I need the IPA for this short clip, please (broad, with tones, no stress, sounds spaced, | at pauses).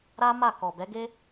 ɾ a˦ m a˦˨ k ɔ˨ b ɛ˨˦ ɡ e˦